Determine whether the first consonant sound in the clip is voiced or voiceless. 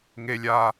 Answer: voiced